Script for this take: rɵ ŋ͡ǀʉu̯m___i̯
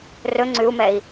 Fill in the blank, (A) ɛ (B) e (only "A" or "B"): A